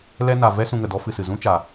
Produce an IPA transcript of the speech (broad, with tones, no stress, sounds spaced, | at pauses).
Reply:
l ɛ˦ n a˨ v ɛ˦ s ũ˧ ŋ ə˨ d ɔ˦ f ɨ˧ s ɨ˨ z ũ˦ t͡ʃ a˨